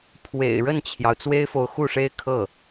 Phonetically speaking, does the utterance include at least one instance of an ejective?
no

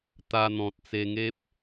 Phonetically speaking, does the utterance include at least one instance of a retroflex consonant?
no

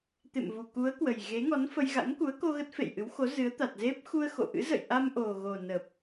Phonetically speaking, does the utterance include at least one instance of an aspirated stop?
no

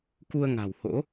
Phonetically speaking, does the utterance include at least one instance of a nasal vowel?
no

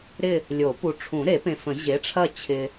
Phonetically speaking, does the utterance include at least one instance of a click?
no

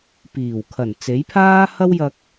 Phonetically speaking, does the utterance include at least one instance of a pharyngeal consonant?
no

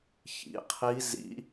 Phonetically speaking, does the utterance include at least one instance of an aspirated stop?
yes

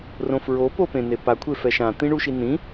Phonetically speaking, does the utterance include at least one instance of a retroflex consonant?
yes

